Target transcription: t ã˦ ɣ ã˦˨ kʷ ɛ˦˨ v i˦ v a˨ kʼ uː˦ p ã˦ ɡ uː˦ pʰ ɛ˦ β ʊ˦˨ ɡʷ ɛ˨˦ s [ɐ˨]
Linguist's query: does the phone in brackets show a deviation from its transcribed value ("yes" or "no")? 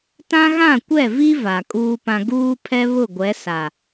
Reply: yes